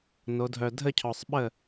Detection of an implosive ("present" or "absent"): present